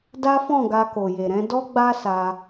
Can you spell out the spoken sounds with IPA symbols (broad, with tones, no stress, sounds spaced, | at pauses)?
d a˦ f ɔ̃˦˨ ɡ a˧ k o˨ j e˨ ɾ ɛ̃˨˦ d ɔ˦ ɡ͡b a˦ s a˧